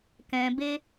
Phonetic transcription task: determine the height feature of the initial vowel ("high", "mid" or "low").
mid